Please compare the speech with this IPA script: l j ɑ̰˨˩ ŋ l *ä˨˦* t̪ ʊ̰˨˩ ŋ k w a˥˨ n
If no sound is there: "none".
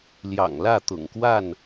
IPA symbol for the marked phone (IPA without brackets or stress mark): ä˥˨